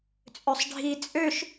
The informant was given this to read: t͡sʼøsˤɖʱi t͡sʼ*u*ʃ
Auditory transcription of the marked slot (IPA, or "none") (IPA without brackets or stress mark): ø